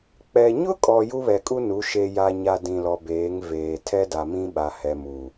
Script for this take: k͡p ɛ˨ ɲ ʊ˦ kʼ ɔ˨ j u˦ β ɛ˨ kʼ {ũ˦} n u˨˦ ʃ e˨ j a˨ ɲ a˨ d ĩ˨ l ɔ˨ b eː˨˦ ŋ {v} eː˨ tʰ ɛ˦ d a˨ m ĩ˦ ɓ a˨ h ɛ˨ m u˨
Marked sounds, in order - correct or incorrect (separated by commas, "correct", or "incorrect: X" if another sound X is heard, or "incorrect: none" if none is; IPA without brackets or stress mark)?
incorrect: u˦, correct